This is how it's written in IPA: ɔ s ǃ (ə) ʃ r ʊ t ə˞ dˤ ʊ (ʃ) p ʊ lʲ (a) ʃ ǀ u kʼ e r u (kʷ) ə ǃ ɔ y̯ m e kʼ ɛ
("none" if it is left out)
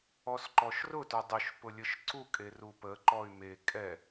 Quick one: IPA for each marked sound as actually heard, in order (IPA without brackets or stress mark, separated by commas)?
ɔ, ʃ, ə, p